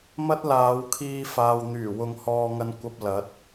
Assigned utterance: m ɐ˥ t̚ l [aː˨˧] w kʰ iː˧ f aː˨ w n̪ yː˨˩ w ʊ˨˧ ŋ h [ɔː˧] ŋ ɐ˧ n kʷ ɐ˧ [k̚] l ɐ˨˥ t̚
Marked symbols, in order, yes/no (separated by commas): yes, yes, no